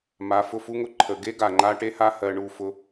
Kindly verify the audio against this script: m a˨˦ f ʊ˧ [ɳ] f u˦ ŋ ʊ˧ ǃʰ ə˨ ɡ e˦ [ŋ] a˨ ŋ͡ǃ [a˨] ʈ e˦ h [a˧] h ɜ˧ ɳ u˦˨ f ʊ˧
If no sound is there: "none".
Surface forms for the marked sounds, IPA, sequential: none, ɡ, a˦, a˦

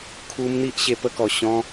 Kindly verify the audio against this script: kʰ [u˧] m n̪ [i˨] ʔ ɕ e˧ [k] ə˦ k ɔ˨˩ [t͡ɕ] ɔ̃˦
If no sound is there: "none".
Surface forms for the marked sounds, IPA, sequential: u˦, i˦, p, ɕ

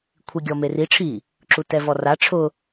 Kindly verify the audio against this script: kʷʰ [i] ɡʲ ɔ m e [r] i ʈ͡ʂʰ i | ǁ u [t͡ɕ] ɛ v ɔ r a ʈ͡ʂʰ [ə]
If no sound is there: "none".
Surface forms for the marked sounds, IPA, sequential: i, r, t, ʊ

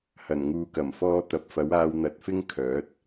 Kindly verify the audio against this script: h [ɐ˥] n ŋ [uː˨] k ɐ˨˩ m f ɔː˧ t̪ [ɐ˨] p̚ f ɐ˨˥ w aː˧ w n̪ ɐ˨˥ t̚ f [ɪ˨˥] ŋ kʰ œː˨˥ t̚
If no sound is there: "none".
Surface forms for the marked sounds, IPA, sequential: ɐ˨˩, uː˨, ɐ˨, ɪ˥

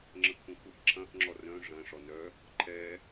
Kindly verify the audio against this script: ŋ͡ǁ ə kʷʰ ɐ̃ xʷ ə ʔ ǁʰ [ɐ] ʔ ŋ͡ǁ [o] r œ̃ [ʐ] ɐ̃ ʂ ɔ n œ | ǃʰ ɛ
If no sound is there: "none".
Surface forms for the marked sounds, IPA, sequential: ɐ̃, ɔ, ʐ

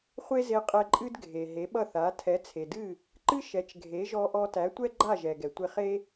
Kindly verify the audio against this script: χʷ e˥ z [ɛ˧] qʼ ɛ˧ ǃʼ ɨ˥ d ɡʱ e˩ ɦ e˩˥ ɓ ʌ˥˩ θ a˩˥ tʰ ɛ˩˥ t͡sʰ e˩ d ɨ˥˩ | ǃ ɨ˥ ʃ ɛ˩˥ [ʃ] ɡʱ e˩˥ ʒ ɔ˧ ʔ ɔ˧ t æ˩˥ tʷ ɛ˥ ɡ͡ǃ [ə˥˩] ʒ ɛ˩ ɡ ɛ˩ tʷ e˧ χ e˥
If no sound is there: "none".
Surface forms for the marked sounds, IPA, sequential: e˧, t͡ʃ, a˥˩

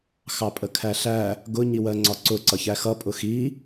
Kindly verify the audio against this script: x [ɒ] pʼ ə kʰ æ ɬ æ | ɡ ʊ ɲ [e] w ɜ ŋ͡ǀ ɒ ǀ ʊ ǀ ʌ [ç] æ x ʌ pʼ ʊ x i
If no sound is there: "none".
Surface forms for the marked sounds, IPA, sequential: ɑ, i, ç

